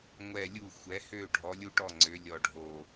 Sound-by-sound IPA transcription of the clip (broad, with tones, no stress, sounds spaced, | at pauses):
ŋʷ ɛ˧˩ lʲ u˧˩ xʷ ɛ˩˧ h ø˧˩ ɖʱ ɔ˩˧ lʲ u˧˩ ʈ ɔ˧˩ ŋ͡ǀ ø˩˧ lʲ ɔ˧˩ ɖʱ o˧˩